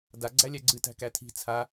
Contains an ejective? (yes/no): no